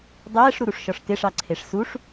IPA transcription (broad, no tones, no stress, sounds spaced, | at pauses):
dˤ ɛː ʂ ɾ u ɾ u ʂ ʃ ɔ ʂ t ɪ ʂ ɑ ǀʰ e ʂ s u ʂ